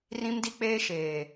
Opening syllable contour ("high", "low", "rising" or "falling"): high